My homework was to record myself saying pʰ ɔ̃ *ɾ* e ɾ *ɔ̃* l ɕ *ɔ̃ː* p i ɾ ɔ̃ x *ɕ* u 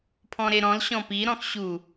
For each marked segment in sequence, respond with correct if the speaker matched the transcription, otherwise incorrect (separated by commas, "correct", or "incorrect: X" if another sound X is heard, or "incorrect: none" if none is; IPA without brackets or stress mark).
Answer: correct, correct, incorrect: ɔ̃, correct